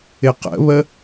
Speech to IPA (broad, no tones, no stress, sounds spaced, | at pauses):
ɪ q ə̰ β ə